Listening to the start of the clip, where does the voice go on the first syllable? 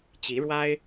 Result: rising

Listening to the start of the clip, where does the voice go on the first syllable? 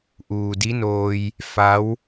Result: low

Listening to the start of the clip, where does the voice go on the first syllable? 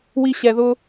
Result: high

